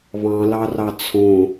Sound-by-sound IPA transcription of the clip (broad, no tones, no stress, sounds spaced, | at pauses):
β ɑ̃ l ɑ r ɑ t͡sʰ õ